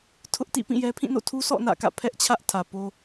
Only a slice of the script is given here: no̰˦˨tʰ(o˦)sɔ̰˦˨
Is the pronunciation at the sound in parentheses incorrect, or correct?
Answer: incorrect